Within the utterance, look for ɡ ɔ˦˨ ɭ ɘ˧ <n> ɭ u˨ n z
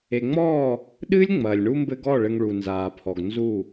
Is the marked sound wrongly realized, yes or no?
yes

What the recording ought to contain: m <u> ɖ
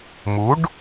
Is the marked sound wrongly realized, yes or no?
no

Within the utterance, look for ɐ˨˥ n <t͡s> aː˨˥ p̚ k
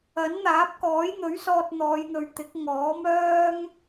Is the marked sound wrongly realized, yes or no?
yes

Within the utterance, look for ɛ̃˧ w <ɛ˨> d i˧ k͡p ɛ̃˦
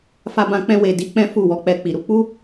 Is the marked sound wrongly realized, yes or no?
yes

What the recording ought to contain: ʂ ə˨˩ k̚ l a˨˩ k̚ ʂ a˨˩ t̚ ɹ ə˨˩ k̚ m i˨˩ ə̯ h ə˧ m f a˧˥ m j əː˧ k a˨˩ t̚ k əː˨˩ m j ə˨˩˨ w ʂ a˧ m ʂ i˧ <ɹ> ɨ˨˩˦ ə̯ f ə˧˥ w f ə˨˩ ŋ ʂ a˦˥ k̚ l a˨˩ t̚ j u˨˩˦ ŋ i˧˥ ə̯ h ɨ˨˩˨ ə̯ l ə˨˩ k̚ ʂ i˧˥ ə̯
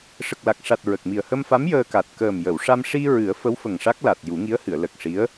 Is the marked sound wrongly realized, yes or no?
no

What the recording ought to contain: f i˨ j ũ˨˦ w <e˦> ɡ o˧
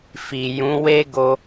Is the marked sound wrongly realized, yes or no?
no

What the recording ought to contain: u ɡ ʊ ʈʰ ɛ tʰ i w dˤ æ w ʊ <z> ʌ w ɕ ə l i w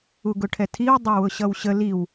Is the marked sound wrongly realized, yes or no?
yes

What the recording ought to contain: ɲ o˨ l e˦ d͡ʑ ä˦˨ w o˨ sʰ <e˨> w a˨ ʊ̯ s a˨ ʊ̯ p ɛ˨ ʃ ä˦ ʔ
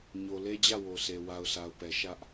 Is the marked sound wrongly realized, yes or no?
no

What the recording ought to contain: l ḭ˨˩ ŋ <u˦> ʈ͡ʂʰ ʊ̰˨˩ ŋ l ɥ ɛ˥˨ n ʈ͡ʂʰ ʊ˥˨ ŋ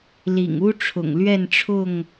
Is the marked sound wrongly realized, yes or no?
no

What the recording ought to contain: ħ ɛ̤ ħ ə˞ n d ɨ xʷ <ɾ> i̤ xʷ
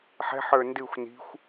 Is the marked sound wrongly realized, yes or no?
yes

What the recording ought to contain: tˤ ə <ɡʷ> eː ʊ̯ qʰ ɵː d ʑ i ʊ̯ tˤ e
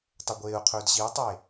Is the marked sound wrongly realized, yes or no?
no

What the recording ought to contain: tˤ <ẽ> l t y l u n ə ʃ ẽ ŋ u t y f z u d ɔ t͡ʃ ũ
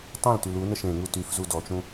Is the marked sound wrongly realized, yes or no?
no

